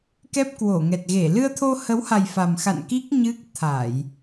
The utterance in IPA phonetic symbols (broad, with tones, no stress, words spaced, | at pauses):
kɛ˦˥p̚kwo˧˩ŋɛ˨˩t̚ɣe˧˩ lɨ˧ə̯t̪ʰo˧hə˨˦wha˨˩j fa˨˩mxa̰˧˨n ki˦˥k̚ ɲɨ˦˥k̚t̪ʰa˧˩˨j